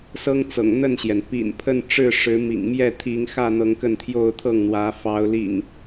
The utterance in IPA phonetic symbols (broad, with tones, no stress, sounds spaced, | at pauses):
s ɤ˦ ŋ t͡s ɤ̰˨˩ ŋ n̪ ə˥˨ n ɕ j ɛ˩ n p ḭ˨˩ n pʰ ə˥˨ n ʈ͡ʂ ɻ̩˥˨ ʂ ɻ̩˨˦ m ḭ˨˩ ŋ m j ɛ˥˨ t̪ʰ i˨˦ ŋ x ä˥˨ n̪ ɤ˨˦ ŋ k ə˥˨ n t̪ʰ j o˥˨ ʊ̯ t̪ʰ ɤ˥˨ ŋ n̪ w ä˨˦ f ɑ˨˦ ʊ̯ l ḭ˨˩ ŋ